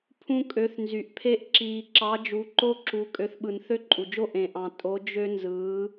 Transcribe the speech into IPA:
pʰũ˦kʼø˨˦θnzy˨ʔpʰe˦ʔ ǁiː˨ ǁɑ˨˦ d͡ʒu˨˦ǃo˦ǁu˨˦ kʼø˨˦θɓɯ˨n θø˦ǃʼu˨d͡ʒo˦ ʔẽ˨ʔɑ̃˨ tʼo˨˦d͡ʒø˦nzɯː˨˦

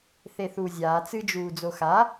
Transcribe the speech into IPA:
θeθuːzʲaː t͡sɨd͡ʒuː d͡zoxa

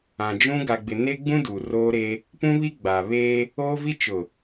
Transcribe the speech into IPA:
ã˨d͡ʒũ˦ ɡa˨ɡ͡bɪ˨ne˦ɡ͡bũ˦ du˨roː˦ɾe˦ | pũ˦βi˦ ɡ͡ba˨ βeː˦ | oː˦vi˦ t͡ʃʊ˨

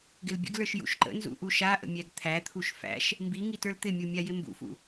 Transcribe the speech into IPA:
ɡɪlbʲə̰ɡlə˞ʃ jṵʃǃə̰nzṵ ʔuʃaʔə̰ mʲæɡt̪ʰæt̪ʰuʃ fæ̰ʃ | mbi ŋitə˞lt̪ɪmʲu mʲajɪmbṵfṵ

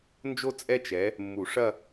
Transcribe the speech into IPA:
nd͡ʒo˥˧ t͡sʼɛ˥˧t͡ʃɛ˨˦ | mːu˨˩˦ʂɐ˥˧

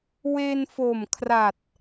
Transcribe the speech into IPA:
we˧nfo˨˩mkʰra˨˩t̚

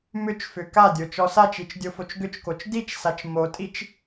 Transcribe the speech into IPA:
mʏt͡ʃfʏ kadʲo t͡ʃɔsat͡ʃit͡ʃ dʲofot͡ʃɡʏt͡ʃkot͡ʃ dit͡ʃsat͡ʃ motʼit͡ʃ

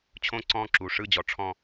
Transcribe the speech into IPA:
t͡ɕʰõ˥˧ǀɔ̃˥˩ǁu˩˧˩ ʂɯ˥˩d͡ʑɔ˩˧ ʈ͡ʂʰɔ̃˥˧

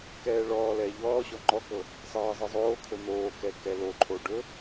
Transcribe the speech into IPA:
kɛːɭɔːlɛː ʎɔːɕɔ ŋ͡ǃɔkɤ | sˤɤːzˤɤzˤoːkʰɵ n̪oːkɛ kɛloǃʰo ɖɵ

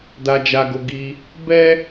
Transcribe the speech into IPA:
da˧d͡ʒa˧ɡo˧ ɡi˧ | bɛ˦

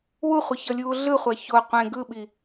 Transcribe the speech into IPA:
wuχʷʌçʌlʲuː ɮɯχʷa ço qʷẽ ɡɯɓi

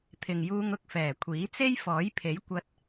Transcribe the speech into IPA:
t̪ʰɪ˨ŋjuː˧ŋ ʊ˨k̚fɛː˨˩kʷʰiː˨˥t͡se˥j fɔː˨˥jpʰe˨˥j kʷɐ˧t̚

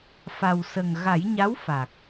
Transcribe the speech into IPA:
fa˨˩wsə˨˩ŋɣa˨˩˦j ɲa˧˥wfa˨˩k̚

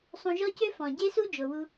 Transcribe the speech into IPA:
sˤũ˧ ʒɔ˥cø˥ fɔ̃˩ɟe˥su˥ d͡ʒo˩wu˧

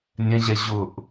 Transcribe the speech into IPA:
nʲɛ̃ʑɛ ʑʊʔ

